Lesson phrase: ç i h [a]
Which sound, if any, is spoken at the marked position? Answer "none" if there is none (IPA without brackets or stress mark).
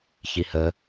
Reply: ə